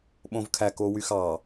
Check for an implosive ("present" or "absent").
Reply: present